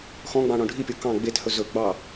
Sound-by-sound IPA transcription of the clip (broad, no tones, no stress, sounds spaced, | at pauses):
x ɔ̃ ɡ͡b ɑ̃ ɳ ɔ̃ ɖʱ i pʲ o k ɑ̃ ɡ͡b e t h ɵ z ɵ ɡ͡b ɑ